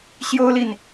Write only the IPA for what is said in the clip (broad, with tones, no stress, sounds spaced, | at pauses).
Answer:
ɕ j o˥ ʊ̯ l i˨ n